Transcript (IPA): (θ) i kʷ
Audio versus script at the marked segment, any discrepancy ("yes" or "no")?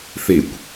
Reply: no